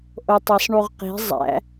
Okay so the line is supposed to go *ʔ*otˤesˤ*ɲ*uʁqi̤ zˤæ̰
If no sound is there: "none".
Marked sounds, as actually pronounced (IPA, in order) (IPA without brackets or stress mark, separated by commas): ʔ, ɳ